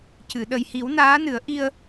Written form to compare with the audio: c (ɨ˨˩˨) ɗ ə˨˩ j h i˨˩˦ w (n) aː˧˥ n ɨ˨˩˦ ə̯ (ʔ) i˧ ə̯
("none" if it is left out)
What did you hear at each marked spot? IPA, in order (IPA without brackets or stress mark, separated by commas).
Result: ɨ˨˩˨, n, ʔ